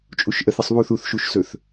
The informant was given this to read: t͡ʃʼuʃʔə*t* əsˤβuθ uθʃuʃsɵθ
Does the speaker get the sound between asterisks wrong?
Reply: yes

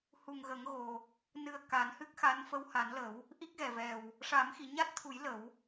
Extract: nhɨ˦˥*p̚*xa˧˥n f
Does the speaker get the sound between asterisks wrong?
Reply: yes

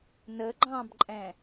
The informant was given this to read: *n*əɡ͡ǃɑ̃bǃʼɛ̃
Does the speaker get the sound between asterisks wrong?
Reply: no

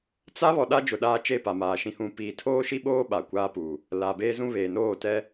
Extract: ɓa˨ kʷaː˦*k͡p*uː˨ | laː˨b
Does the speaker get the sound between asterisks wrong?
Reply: yes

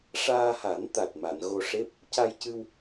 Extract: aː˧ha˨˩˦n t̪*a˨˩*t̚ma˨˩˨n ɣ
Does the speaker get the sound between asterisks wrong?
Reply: no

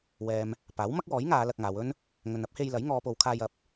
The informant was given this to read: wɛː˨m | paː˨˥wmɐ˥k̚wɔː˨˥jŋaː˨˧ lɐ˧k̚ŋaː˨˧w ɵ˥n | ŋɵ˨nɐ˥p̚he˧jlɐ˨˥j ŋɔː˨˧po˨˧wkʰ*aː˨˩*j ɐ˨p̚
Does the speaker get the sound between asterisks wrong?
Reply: yes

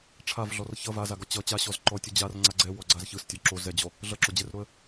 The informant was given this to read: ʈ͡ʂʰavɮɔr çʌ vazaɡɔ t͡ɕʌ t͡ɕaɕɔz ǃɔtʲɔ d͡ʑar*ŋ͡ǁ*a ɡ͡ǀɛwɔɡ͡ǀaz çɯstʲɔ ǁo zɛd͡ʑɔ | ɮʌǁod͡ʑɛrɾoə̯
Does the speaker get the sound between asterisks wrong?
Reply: yes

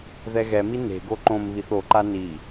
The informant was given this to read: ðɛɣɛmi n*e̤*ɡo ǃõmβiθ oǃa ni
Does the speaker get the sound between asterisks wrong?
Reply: no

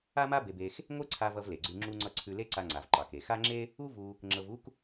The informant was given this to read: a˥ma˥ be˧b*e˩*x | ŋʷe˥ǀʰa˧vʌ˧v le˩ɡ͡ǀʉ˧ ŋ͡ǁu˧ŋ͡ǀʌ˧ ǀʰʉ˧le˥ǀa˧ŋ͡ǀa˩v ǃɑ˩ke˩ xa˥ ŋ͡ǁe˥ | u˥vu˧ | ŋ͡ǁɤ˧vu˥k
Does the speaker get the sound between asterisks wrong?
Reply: yes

